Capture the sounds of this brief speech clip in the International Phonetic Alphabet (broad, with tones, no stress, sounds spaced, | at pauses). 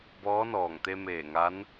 b ɔː˧˥ n ɔː˧˩ ŋ t̪ e˧ m eː˧˩ ŋ a˧˥ n